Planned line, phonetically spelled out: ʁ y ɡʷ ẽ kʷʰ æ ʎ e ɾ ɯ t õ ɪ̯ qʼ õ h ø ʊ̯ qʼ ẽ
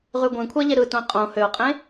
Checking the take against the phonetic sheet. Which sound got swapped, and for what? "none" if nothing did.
none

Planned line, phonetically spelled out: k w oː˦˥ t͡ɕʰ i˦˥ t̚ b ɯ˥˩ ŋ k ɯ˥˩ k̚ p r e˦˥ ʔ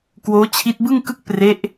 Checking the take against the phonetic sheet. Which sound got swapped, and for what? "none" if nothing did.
none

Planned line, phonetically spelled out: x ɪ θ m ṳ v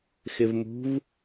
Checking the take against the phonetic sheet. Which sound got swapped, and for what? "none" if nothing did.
θ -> v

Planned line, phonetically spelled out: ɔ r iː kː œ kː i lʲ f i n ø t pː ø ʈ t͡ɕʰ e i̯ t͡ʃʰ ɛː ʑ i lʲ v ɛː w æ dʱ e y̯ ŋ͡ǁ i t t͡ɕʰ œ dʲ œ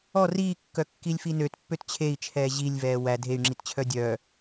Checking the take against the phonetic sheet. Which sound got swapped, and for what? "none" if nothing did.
ʈ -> t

